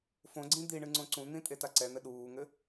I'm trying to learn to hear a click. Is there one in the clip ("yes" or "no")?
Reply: yes